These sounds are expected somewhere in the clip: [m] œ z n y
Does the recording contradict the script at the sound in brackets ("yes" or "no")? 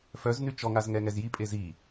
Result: yes